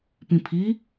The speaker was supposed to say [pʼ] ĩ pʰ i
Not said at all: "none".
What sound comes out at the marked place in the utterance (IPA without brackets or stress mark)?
p